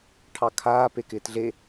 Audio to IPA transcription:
ʈʰ ɑ kʰ aː p e k ɪː t ɮ e

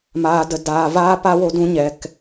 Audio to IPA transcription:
m aː˨ d ə˨ d aː˨ v aː˦ p a˦ w o˧ d ũ˧ ɲ ɛ˨ k

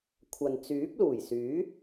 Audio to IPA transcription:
kʷʰ ɐ˨ n t͡s yː˨˥ p̚ l uː˨˩ j s yː˨˥

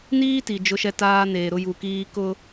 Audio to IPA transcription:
n iː˦ t i˨ d͡ʒ ʊ˦ ʃ ɛ˦ t aː˦ n eː˨ ɾ ʊ˦ j u˨ k iː˦ k ʊ˦

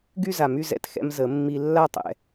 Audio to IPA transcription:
ɡ y˥˧ z a˨˩˦ m y˧ z ɛ̰˧˩ t x ɛ̰˧ m z ə˨˩˦ mː i˧ lː a˥˧ tˤ ɛ̰˧

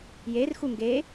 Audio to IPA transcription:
j e r x u ŋ ɡ e

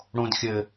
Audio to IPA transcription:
ɽ õ d xʲ ɘ

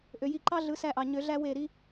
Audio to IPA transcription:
ʔ ø˩ j i˧˩ ǃ ɑ˦ ɮ ɯ˩˥ s æ˧˩ ʔ ɑ˩ ɲ ø˨˩˦ ɮ æ˦ w e˧˩ ɾ i˦

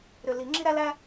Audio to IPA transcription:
ɾ ʏ˨˩ l i˨˩˦ ŋ͡ǁ i˥ ɾ æ˥ l æ˥

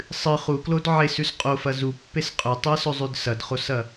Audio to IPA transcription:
sˤ ɨ χ u k l o d ʕ e s ʉ s qʼ o f ɐ z u pː e s qʼ ɵ tˤ ɨ ɐ̯ s ɵ zˤ ʉ d s ɐ d χ o s ɐ

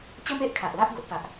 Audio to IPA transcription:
t͡ɕ ə˦ m e˦ ʔ kʰ a˨ ʔ l a˦ ʔ ɡ o˦ ʔ p a˦ ʔ

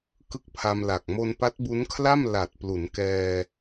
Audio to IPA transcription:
k ɯ˥˩ k̚ pʰ a˧ m l a˨˩ k̚ m o˧ n p a˦˥ t̚ b u˦˥ n kʰ l a˥˩ m l a˨˩ t̚ p l u˩˦ n k ɛː˧

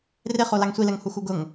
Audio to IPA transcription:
r ɪ χ o l a ŋ sʷ i l ɛ ŋ h u x u ɡ ʊ ŋ

